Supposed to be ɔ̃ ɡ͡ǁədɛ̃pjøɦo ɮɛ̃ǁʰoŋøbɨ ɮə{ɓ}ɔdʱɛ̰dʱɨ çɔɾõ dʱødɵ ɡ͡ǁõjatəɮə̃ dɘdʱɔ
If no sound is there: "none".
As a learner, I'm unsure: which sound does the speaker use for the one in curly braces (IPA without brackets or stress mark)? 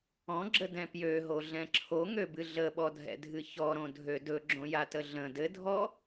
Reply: ɓ